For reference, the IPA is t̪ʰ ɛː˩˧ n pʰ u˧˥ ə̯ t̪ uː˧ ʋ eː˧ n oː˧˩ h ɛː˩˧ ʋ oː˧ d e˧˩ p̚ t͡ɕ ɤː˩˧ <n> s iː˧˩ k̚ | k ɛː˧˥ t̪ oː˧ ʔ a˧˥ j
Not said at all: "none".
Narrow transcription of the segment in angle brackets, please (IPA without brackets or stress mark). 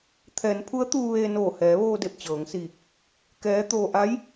ŋ